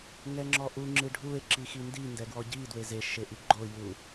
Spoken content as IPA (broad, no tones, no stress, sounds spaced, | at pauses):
ŋ ɛ ŋ͡ǁ ɔ ʔ u ŋ͡ǁ ɨ ɖʱ u e̯ ǁ i x i n d i n d ɛ ɡ w ɔ ɟ i d w e z e ʃ e ʔ i ɡ͡ǃ o j u